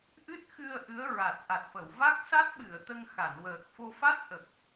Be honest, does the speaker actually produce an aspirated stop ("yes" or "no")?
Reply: no